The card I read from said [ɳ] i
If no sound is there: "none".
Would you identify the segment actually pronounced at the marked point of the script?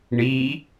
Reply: ɳ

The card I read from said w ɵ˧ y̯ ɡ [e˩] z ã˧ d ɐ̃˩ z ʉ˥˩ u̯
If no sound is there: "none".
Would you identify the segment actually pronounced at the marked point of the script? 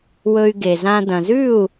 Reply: e˩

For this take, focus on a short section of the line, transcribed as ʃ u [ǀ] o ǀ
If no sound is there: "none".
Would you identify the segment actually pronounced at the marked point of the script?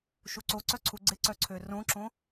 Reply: ǀ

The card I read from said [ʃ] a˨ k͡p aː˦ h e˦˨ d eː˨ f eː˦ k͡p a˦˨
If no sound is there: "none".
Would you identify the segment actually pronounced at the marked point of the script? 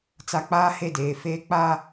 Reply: t͡s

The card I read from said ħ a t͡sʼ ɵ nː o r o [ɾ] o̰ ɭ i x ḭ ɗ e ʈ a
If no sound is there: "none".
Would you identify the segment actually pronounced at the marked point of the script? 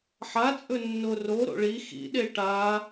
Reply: ɾ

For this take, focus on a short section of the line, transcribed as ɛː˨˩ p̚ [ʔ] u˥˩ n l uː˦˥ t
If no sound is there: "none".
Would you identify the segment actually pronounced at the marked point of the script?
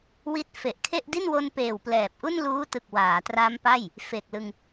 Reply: ʔ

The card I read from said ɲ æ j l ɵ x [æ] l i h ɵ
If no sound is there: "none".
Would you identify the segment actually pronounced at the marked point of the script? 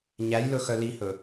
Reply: œ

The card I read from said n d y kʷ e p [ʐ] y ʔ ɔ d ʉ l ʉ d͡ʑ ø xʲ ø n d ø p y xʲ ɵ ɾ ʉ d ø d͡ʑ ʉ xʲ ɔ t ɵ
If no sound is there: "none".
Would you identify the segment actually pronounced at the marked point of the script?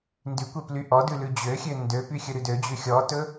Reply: l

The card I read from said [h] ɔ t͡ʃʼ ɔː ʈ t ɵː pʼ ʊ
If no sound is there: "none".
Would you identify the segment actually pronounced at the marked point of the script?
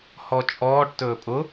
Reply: h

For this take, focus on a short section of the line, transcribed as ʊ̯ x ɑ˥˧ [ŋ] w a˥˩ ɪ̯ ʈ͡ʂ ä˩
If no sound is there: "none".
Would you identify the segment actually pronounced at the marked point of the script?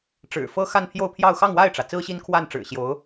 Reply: ŋ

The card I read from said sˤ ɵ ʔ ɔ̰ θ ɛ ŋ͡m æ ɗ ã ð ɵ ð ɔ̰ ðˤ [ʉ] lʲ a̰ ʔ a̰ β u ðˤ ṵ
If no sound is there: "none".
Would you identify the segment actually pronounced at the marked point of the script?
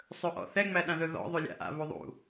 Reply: ʉ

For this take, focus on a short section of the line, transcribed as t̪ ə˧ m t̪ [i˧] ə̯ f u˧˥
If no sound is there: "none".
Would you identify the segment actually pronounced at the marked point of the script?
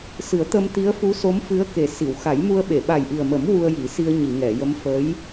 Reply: i˧˥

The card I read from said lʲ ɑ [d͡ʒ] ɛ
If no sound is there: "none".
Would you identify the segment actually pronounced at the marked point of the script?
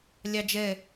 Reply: d͡ʒ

